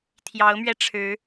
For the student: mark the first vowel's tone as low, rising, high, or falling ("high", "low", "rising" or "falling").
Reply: rising